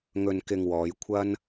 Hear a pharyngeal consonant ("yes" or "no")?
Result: no